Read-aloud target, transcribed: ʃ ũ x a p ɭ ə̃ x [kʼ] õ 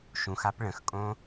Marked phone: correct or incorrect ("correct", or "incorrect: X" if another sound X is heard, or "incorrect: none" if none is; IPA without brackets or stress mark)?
correct